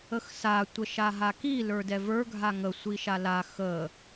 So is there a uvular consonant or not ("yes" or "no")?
no